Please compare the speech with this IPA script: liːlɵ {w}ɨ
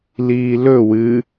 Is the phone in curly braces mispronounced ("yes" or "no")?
no